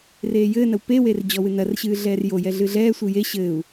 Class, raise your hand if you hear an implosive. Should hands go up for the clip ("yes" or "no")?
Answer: no